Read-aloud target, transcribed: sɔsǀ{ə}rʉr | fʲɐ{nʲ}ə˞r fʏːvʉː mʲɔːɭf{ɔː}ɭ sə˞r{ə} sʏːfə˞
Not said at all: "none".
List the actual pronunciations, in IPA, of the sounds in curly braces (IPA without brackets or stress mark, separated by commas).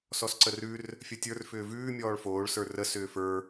ə, tʲ, oː, ə